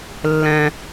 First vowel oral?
no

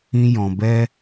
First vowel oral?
no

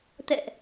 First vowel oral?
yes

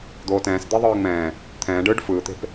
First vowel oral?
yes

